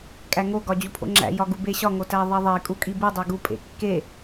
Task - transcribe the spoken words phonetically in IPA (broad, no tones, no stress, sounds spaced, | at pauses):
kʼ æ ŋ o ɡ ɒ d͡ʑ u pʰ o̰ ŋ͡ǁ æ̰ j ɒ ɡ u b e ɕ ɒ ŋ o t æ ðˤ i ðˤ e kʼ u kʼ i b u dˤ e ɡ u pʼ ḛ kː e